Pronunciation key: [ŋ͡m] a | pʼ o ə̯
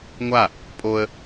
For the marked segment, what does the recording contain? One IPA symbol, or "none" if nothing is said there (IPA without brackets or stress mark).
ŋʷ